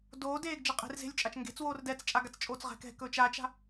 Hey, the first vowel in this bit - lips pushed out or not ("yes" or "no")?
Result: yes